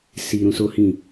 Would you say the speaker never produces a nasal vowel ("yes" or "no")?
no